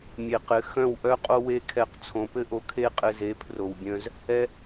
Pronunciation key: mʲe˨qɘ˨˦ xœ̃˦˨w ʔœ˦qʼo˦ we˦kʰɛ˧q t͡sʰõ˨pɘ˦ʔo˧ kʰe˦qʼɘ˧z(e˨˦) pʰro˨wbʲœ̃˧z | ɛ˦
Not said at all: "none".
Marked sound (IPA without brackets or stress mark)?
e˨˦